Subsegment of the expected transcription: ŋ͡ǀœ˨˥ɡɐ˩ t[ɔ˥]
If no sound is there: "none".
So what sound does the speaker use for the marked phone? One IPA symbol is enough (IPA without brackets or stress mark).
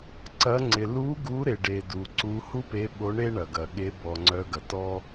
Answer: ɔ˥